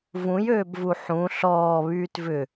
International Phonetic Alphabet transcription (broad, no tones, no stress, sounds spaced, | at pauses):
v ũ j øː b v u ħ ũ ɬ ɔː β yː t v ʏ